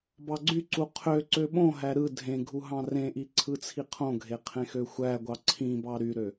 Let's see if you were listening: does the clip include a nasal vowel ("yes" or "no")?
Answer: yes